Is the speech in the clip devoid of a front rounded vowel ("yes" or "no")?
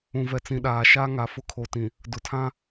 yes